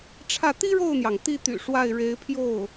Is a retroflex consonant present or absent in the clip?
present